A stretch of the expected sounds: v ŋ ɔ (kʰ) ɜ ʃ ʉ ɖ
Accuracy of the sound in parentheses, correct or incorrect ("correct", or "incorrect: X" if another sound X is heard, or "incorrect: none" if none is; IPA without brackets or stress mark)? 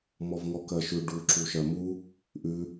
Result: incorrect: k